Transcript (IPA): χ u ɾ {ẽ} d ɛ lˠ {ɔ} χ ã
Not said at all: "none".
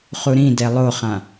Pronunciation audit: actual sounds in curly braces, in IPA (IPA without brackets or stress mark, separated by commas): ĩ, o